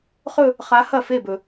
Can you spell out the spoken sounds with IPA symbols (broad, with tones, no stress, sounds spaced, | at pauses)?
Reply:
χ ɵ˥˧ | χ a˧˥ h ɐ˥˩ f e˥˩ b ɵ˨